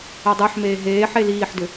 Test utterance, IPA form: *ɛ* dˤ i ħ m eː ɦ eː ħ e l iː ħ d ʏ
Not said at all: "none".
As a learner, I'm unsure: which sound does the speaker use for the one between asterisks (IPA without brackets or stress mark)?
e